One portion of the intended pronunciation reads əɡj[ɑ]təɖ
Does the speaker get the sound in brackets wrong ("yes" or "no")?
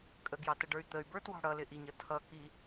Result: no